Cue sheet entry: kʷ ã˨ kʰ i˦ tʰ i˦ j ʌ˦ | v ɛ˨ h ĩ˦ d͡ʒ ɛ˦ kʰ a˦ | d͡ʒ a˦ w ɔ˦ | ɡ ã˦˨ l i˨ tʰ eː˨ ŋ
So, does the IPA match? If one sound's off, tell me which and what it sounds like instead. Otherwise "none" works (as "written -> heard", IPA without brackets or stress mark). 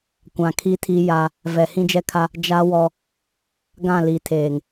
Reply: ʌ˦ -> a˦